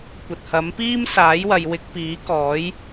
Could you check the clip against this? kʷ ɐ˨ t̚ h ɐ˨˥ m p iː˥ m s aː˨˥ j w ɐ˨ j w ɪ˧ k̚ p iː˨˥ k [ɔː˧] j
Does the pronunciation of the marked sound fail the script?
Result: yes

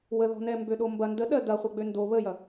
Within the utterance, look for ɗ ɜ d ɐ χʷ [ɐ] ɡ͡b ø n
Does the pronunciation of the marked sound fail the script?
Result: no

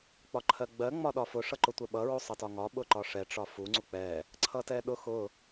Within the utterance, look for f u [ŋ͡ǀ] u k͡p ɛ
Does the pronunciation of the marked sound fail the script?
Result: no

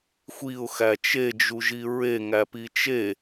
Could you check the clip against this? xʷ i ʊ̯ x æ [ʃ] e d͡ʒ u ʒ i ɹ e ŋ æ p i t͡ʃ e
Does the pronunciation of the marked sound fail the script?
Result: yes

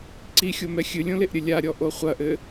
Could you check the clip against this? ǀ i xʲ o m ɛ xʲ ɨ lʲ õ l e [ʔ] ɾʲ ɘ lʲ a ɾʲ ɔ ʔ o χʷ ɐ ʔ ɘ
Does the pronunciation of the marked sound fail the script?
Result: no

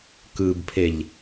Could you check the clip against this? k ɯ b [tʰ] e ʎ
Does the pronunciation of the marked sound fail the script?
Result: yes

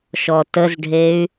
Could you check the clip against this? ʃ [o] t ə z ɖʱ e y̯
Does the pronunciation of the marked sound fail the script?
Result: yes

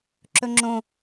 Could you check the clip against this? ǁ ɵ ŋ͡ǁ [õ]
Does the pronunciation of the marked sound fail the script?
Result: no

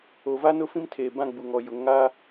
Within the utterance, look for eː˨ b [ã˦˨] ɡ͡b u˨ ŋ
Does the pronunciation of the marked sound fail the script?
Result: no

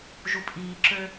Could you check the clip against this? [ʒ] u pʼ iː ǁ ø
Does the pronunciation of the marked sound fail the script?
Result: no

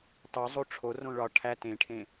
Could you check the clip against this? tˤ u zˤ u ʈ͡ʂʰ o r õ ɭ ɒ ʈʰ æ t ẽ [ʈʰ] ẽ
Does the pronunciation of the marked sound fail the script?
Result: no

